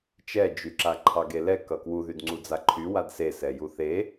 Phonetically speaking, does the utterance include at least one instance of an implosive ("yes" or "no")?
no